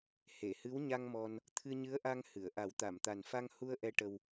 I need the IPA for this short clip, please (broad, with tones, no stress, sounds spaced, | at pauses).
h e˨˩˨ h ɨ˧˥ w ɲ a˧ ŋ m ɔ˧ n | t̪ʰ ɨ˧ ɲ ɨ˧˥ ə̯ ʔ a˧ ŋ h ɨ˨˩˨ ə̯ ʔ a˨˩˦ w t̪ a˨˩˨ m t̪ a˨˩ n f a˧ ŋ h u˧ ə̯ ʔ ɛ˧ ʈ ə˧ w